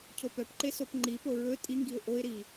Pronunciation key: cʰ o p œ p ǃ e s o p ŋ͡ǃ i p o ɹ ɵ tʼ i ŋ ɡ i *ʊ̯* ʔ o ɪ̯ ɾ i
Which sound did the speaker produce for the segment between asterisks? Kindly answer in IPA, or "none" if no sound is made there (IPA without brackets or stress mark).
ʊ̯